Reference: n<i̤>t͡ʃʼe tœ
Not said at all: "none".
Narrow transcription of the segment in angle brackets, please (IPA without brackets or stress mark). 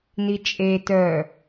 i